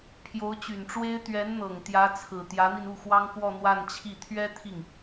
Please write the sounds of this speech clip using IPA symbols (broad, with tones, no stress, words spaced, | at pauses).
pʰjo˧˥ʊ̯t͡ɕy˨˩nʈ͡ʂwe˥ɪ̯ t̪ɥɛ˧˥nn̪ɤ˨˩ŋ t̪jä˧˥t͡sʰɹ̩˨˩ t̪jä˧˥n̪i˧n u˥˩xwɑ˥ŋkwɔ˥˧ n̪wa˥˧nt͡ɕʰi˥˩ t̪ʰɥɛ˥ t̪ʰi˥˩ŋ